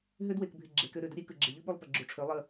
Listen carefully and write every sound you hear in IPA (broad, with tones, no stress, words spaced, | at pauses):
ɦø˦dwe˨kbʱɪ˨ ɡ͡ǁe˨kø˦ ɾø˨də˦ ɾʲe˦ kɯ˨ɡ͡ǁɪ˨ʎɯ˦ ɓu˦lˠpə˨ɡ͡ǁu˨ ʈ͡ʂʰø˨˦lˠə˦˨